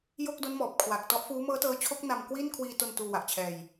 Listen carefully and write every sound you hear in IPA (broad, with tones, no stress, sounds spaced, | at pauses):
j o˥˩ k̚ d o˦˥ n m ɔː˨˩ p̚ kʰ w a˨˩ k̚ t ɔ˦˥ ʔ f uː˦˥ m ɤː˦˥ t ɤː˦˥ t͡ɕʰ o˦˥ k̚ n a˧ m k w i˥˩ n kʰ w iː˧ t o˧ n t uː˧ w a˨˩ ʔ t͡ɕʰ ɛː˧ j